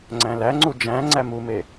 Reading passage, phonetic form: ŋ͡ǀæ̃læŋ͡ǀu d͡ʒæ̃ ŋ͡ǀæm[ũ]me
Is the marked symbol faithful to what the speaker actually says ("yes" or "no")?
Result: no